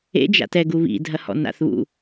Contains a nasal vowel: no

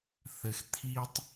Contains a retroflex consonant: no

